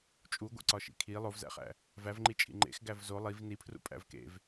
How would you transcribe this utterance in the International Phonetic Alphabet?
t͡ʃʼuɡʷḛ ǀɒʃḭkʰi lˠovzæ̰χæ̰ | vævŋ͡ǃi t͡ʃʼḭŋ͡ǃḛx ɡævzo lˠiv nipʰrṵ pʼæ̰vkḛv

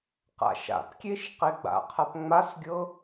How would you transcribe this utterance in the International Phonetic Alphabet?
qa̰ʃa̰pkʲeʃ qeɡ͡ba̰qʰap ŋ͡masɡʲɤ

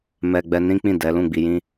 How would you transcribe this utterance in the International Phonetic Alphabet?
mɛ˧ɡ͡bɛ˧ nĩ˦k͡pĩ˦˨dɛ˨˦ lũ˦˨ɡ͡bi˧jĩ˦

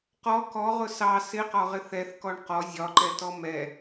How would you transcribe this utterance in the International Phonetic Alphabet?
qɔ kɔʁʊ sɑ sɪqɒʁɪ θɛθkɔɳ qɔ zʲɒǃɛtɔ mɛ

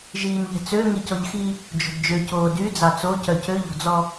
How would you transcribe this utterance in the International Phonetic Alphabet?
ʒiːnʎɛ̤t͡sø ŋicɔʎxi | d͡ʒo̤dd͡ʒøcoː dy d͡zɑt͡so cœcøʎɔ̤d͡zɔ

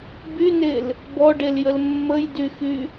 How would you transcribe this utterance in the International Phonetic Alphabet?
bynel | bɔɖeljəl mːəjdyxy

